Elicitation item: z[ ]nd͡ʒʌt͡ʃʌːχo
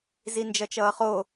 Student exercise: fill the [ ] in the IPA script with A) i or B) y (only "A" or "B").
A